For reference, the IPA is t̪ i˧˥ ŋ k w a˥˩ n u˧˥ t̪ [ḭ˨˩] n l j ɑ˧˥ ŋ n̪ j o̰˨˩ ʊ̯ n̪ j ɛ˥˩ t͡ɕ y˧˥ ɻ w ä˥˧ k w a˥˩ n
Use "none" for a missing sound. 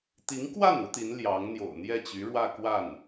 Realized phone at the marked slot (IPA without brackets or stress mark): i˧˥